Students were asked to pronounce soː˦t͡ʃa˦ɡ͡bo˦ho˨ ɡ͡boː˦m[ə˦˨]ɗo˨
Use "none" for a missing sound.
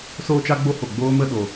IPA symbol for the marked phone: ə˦˨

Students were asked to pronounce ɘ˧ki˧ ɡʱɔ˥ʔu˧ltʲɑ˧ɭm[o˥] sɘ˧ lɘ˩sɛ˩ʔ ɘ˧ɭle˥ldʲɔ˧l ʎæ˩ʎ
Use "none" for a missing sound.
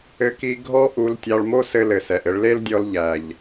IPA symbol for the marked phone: o˥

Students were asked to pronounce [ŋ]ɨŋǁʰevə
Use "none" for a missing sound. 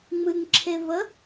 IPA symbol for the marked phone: ŋ͡m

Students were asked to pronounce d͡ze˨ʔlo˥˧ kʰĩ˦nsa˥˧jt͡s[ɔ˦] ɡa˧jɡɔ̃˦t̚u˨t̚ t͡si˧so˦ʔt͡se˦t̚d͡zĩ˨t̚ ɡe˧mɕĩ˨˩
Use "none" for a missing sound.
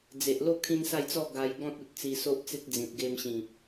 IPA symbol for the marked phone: ɔ˥˧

